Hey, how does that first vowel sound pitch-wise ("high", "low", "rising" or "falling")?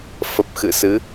low